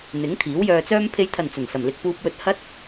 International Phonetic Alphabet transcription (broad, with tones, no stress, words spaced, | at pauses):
n̪ɪ˨˥ŋt̪ʰiː˨˥wjœː˧t͡sœː˥m pʰe˨˧jt̪ʰɐ˨˩n t͡sɵ˨˩n sɐ˨˩mlɪ˧k̚ puː˧p̚wɵ˧t̚hɐ˥t̚